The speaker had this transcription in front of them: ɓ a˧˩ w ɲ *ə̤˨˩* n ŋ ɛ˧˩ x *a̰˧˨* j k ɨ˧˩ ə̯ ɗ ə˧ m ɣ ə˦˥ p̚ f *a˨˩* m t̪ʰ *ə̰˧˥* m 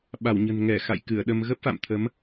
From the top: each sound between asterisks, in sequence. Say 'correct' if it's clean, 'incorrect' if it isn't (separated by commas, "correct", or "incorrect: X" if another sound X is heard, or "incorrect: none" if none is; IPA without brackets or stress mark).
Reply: correct, correct, incorrect: a̰˧˨, incorrect: ə˨˦